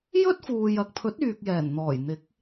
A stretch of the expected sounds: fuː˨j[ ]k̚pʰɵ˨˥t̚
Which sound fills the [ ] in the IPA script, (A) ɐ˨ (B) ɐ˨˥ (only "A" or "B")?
A